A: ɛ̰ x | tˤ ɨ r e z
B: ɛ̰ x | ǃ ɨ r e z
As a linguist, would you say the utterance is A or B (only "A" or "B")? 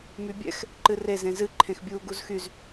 B